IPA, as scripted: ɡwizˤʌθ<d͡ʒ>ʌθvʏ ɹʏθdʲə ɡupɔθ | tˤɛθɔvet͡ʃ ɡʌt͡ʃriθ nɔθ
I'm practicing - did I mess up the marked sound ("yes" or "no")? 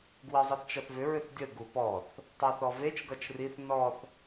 yes